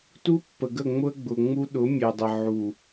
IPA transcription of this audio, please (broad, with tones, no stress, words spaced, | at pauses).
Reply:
tu˦pːə˨ɡə˦˨ŋ͡mʊ˦ə̯ ɡ͡bʊ˨ŋ͡mu˦ ɗʊ˨˦mʲe˨dˤə˨ ʕu˨